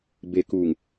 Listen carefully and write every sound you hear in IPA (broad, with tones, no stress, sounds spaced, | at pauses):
b e˨ k uː˨ ŋ